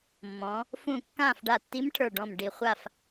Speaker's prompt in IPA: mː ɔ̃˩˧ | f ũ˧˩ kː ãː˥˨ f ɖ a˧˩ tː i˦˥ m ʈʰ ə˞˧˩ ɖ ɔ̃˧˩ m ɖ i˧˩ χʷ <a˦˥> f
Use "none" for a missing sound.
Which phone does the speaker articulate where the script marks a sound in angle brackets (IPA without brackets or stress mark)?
a˥˨